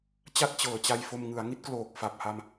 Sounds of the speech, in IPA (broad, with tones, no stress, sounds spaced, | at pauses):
t͡ɕ a˥˩ t̚ t͡ɕ ɤː˨˩ t͡ɕ a˧ j f o˧ m ŋ ɯ˩˦ a̯ ŋ i˦˥ t̚ k l oː˨˩ k̚ f a˨˩ p̚ h a˧ m